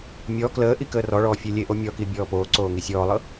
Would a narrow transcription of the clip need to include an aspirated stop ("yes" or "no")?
no